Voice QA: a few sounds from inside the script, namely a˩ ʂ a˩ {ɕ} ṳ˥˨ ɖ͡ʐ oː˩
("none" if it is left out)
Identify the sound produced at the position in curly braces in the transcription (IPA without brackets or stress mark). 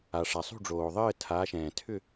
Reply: sˤ